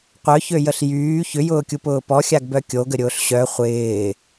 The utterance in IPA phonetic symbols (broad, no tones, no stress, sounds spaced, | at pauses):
qʷ œ ç ø j ə ɬ j yː ç ʏ j ʊː kʲ u p ʊː p ɔ xʲ a ɡ b œ kʲ o ɡ ə ɾʲ ʊː ɬ ɕ œ χʷ ɪː